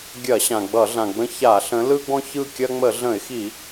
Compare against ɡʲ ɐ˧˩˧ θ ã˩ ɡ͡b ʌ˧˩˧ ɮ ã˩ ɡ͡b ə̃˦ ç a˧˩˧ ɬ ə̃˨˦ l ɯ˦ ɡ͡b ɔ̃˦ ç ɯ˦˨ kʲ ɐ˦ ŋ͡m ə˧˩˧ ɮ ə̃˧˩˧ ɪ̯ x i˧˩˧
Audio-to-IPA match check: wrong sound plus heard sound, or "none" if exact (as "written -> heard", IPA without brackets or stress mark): θ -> ɕ